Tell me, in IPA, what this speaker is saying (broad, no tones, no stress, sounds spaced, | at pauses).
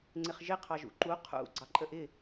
ŋ͡ǀ ɪ χ ʒ ɪ qʰ ɑ ʒ ṵ ǃ u qʰ ṵ ɡ͡ǀ ɑ ǃʼ ə ʔ ɪ